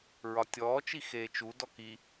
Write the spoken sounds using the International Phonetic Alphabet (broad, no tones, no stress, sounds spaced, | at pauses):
ɹ ɒ tʲ ɔː t͡ʃ i x eː t͡ʃ u d ɔ k i